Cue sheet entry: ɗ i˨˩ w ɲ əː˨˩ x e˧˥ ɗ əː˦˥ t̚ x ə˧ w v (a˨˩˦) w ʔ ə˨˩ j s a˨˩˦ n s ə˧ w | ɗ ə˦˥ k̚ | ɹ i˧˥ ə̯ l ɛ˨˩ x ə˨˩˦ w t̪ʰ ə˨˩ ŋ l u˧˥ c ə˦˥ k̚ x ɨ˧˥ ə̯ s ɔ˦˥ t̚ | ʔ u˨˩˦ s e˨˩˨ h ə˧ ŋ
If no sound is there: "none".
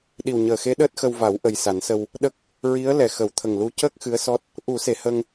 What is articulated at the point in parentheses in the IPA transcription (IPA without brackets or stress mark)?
a˨˩˦